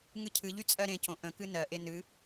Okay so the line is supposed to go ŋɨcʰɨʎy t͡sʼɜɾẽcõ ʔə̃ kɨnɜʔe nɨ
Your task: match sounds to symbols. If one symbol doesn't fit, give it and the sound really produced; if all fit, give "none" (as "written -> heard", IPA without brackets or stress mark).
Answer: none